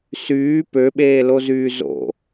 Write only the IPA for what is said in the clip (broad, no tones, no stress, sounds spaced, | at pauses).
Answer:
s yː p ø ɓ eː l o z yː z o̰